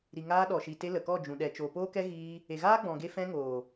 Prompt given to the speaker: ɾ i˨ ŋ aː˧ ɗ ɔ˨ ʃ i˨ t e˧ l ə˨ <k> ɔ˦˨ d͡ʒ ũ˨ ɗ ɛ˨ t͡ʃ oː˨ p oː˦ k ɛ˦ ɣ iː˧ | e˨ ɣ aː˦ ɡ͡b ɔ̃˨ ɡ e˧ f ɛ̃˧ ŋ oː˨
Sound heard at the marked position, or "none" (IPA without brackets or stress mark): k